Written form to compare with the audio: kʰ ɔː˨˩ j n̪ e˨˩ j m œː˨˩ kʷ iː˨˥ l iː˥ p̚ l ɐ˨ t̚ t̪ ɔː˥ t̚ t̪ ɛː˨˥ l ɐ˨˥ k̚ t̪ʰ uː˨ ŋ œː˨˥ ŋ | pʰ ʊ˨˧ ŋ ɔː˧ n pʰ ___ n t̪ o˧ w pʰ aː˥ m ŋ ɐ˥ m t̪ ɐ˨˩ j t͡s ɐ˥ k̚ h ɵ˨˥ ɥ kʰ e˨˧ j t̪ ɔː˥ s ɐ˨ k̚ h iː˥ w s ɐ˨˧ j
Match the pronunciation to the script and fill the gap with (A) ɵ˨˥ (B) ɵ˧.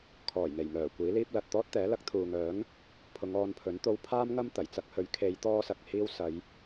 A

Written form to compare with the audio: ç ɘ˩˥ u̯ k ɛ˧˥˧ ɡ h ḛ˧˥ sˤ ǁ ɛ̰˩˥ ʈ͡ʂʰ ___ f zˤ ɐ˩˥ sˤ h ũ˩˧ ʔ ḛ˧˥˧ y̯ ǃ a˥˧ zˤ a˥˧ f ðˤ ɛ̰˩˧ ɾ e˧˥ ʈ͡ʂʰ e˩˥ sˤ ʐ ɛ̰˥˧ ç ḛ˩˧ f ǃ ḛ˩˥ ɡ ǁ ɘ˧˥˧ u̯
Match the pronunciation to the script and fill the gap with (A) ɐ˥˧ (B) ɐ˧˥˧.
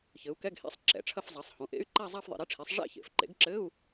A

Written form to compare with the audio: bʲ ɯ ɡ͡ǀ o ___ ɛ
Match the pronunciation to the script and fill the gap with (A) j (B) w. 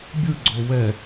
B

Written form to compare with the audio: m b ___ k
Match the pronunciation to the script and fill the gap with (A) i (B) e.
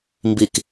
A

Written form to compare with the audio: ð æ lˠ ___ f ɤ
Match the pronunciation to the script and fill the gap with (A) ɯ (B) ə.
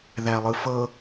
A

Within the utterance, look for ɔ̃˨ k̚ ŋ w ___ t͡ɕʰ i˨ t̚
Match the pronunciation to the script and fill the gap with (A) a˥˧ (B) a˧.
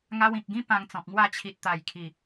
A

